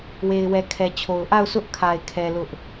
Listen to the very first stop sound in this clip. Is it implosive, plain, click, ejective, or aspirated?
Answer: aspirated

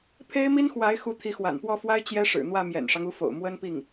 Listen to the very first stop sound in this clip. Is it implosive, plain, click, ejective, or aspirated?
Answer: aspirated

